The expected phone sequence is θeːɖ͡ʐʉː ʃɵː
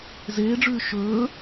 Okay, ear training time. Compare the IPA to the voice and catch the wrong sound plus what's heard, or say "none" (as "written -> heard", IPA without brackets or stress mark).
θ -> z